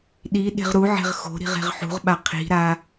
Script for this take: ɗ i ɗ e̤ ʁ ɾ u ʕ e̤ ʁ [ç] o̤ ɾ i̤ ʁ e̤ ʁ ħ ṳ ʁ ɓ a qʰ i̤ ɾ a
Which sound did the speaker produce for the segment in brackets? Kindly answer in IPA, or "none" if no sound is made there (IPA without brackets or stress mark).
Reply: x